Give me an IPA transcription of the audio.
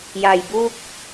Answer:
ja˨˩jbu˥˩k̚

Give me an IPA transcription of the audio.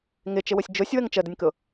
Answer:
ŋɪt͡ʃɪwʊsʲ d͡ʒʊsʲwəŋ t͡ʃədənʲkʊ

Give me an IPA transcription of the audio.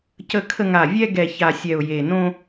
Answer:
cə˧kʰə˧ ŋa˨˩vʲɛ˧ ɡɛ˨˩ça˨˩ sʲɛ˨˩ʊ̯je˨˩ nõ˧

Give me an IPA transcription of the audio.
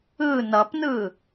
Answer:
ɯ nʌpnɯ

